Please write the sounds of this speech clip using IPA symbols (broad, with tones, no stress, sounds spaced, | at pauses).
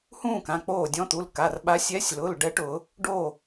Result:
h ũː˥˨ k ã˩˧˩ k͡p oː˧˩ dʲ ɔ̃˨˦ t̪ u˩˧˩ l k a˩˧˩ r ɓ a˨˦ sʲ ɛ˨˦ sʲ l ʊ˩˧˩ l ɖ ɛ˨˦ ʈ ʊː˧˩˧ | ɖ oː˧˩